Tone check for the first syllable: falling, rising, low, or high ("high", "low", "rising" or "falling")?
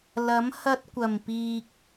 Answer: rising